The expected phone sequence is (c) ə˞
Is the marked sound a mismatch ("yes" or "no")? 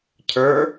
yes